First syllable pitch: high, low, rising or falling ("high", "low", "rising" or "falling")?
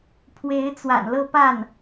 rising